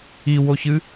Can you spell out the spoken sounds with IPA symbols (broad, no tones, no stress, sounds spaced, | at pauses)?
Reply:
i w o ç ɨ